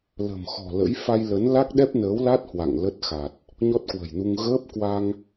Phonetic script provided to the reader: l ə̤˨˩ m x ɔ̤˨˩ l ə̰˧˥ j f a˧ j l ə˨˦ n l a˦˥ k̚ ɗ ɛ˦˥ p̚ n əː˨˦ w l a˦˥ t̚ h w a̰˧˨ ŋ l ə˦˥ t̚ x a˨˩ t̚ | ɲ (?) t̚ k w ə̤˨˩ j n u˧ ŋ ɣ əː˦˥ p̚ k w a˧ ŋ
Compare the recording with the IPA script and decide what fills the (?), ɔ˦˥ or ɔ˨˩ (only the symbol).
ɔ˦˥